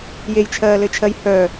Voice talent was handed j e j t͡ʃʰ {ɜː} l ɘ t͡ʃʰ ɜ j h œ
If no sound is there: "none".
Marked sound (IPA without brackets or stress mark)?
ɜː